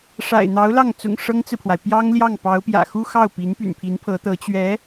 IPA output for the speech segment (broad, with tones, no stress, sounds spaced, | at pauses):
ʂ a̰˨˩ ɪ̯ n̪ ɑ˧˥ ʊ̯ l ɑ˥˩ ŋ t͡s ʊ̰˨˩ ŋ ʂ ɤ˥ ŋ t͡s ɹ̩˨ pʰ w a˩ ɪ̯ p j ɑ˥ ŋ l j ɑ˥˩ ŋ p ɑ˧˥ ʊ̯ p j ä̰˨˩ x u˥ x ɑ˥˩ ʊ̯ p i˧˥ n p y̰˨˩ n pʰ i˧˥ n pʰ ɤ˧˥ t̪ ɤ˧˥ t͡ɕ ɥ ɛ˧˥